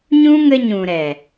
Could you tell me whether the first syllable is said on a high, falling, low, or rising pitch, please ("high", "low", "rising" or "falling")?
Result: high